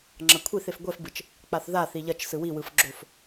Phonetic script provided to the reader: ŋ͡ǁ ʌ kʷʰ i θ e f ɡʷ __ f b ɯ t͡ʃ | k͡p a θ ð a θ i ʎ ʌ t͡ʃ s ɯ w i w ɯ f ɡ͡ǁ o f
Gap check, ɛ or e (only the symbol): ɛ